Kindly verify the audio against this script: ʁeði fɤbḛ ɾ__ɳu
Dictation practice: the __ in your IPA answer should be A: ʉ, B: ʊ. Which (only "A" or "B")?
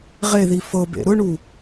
B